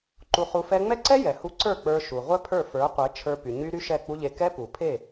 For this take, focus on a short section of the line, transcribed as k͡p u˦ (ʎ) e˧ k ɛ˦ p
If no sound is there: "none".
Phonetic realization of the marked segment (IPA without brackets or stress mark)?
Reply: ʎ